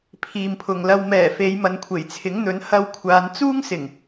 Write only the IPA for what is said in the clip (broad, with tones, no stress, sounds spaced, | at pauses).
pʰ iː˨ m pʰ ʊ˨ ŋ l ɐ˧ w m ɛː˨˩ f e˨˧ j m ɐ˨˧ n kʷʰ e˨˩ j t͡sʰ ɪ˨˥ ŋ n̪ ɵ˨˥ n h ɐ˧ w kʷʰ aː˨˧ n t͡s uː˥ ŋ s ɪ˨˩ ŋ